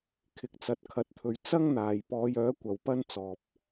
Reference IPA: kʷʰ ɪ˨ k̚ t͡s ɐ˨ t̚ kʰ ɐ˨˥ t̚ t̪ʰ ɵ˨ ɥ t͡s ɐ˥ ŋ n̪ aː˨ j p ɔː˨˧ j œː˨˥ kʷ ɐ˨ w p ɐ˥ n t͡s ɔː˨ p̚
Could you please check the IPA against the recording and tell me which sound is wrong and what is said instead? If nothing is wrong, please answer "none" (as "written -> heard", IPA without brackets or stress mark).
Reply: kʷʰ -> kʰ